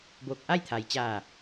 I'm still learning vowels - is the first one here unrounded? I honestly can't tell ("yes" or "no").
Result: no